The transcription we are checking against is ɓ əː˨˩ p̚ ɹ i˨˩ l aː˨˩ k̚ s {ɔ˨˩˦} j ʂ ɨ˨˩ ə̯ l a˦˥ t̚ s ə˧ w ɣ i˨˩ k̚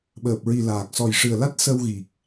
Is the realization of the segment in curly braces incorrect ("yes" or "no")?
yes